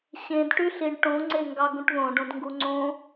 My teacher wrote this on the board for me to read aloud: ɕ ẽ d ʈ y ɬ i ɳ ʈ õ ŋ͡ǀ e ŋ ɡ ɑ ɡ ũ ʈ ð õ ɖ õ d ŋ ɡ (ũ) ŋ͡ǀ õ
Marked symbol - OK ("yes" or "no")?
no